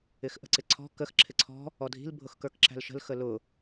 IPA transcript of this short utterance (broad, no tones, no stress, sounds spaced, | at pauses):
ɪ x ʔ ə̤ ǀ ɪ ǀʰ ɔ̤ k ə x ǁʰ ɪ ǀʰ ɔ̤ | ɔ dʱ i̤ l bʱ ʊ x k ə˞ k ǁ æ̤ l ʃ ə̤ l x ə l ʊ